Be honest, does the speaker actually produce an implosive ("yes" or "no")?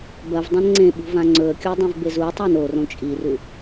yes